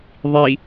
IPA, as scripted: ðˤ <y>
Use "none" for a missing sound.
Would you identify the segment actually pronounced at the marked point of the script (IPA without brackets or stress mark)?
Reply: i